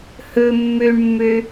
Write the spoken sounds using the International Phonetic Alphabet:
hɵ mːøɳmːø

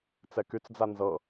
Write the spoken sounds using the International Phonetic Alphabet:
t͡sɛkyt͡sd͡za nzɤ

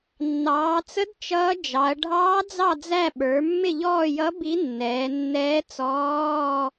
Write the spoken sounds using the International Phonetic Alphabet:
nːɑː˩˧t͡sə˧˥d t͡ʃʌː˧˥ d͡ʒɑ˩˧ɐ̯ ɖʱɑː˧˥d͡zɑ˦˨d͡zæ˦˨ ɓə˞˩˧mːɪ˦˨ʎɔː˦˨jʌ˧˥ bi˧˥nːɛː˩˧nːɛː˧˥ t͡sɔː˧˥˧

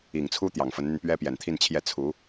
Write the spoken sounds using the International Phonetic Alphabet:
i˨˩ŋt͡sʰu˥ t̪jɑ˨˩ŋfə˧˥nn̪y˧n pɥɛ˥pjɛ˨˩nt̪ʰi˥˧nt͡ɕʰjɛ˥˩ t͡sʰu˧˥

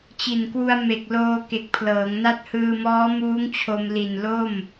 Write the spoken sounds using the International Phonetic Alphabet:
t͡ɕi˨˩nkwu˧a̯me˨˩k̚ loː˧ ke˨˩k̚pʰlɤː˩˦ŋna˥˩t̚ hɯː˧mɔː˦˥muː˦˥ŋ t͡ɕʰo˧m li˨˩nlo˥˩m

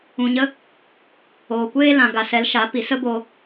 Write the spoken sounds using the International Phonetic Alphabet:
ũ˨ɲə˦ | oː˨kʷeː˧lã˨ ɡa˨sɛ˨˦lʃa˨˦ pi˨sə˦bo˧

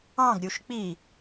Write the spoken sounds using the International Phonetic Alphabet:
ɑ̃ɡɾʲuʃ k͡pi

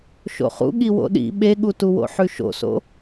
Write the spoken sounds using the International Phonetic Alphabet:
ʃo̰χṵ ɠiwo̰ɗḭ ɓeɠutuwo̰ ħʉʃo̰so̰

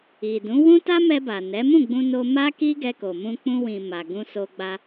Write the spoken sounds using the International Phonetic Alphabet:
i˨dũ˨˦ wũ˦ta˦mɛ˧ba˨ nɛ˨˦ mũ˦˨ɡ͡bũ˧no˧ ma˦ki˦ ɡɛ˧ko˨mũ˧ k͡pũ˧wĩ˨ma˨ ɡũ˧so˧ ɡ͡ba˧

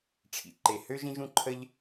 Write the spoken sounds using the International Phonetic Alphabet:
ʈ͡ʂʰḭ˩ǃe˩hø˥ ʒĩ˥ʒũ˥ǃʰə˥ʎ

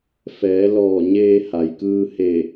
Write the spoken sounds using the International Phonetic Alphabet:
fɛː˩˧ lɔː˧˩ɲeː˧ ha˩jkɯː˧he˧˩

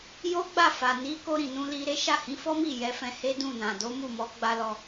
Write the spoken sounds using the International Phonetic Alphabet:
jo˦ɡ͡ba˦˨fa˨ ni˨˦ ko˧ɾĩ˨nũ˧ li˧ɾe˦ ʃa˦˨hĩ˨˦fɔ˦mi˦˨ jɛ˨˦fɛ̃˧he˦dũ˦˨ nã˨do˨˦mu˦˨mɔ˨˦ ɡ͡ba˧lɔ˧

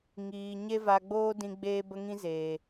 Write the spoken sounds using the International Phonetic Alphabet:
ŋiː˨ ɲe˦va˧ɡ͡boː˦dĩ˧ ɡ͡beː˦bə˦ŋĩ˦zeː˨

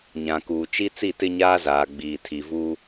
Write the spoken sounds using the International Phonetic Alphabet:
ɲã˨kuː˨t͡ʃi˦ t͡si˦˨tɪ˦ɲaː˦zaː˨ ɡ͡biː˨tʰi˨vuː˦

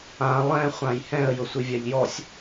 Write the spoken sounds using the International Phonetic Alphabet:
ã lˠɛ̃ χʷãjhɛ̃ə̯ jʊsʷivʲaʎjɔsʲ

